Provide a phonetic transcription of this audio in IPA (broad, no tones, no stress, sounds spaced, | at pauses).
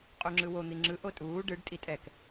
qʼ u ŋ͡ǁ ɯ w o n̪ i ŋ͡ǁ ɯ ʔ o tʼ uː ɖ ɯ ɖ tʼ i tʼ ɛ k